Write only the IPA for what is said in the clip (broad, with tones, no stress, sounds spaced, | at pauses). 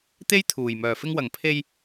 t̪ e˥ j t̪ʰ uː˨˩ j m œː˨˩ f ɪ˧ ŋ w ɐ˨˩ ŋ pʰ e˧ j